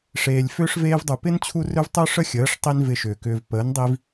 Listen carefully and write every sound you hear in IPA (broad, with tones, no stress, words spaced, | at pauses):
ʂeː˨lʲfʏː˦ʂ veː˧vdˤu˨ pɪ˦n t͡ɕʰu˦rø˦v tˤø˦ʂə˦xʲəː˨˦ʂ tˤi˦nvɪ˧ʃʏː˨kʏː˧v pəː˨˦ndˤi˧v